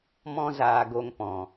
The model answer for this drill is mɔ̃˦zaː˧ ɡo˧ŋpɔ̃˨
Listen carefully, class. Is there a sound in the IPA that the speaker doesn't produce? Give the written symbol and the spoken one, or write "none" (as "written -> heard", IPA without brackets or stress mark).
none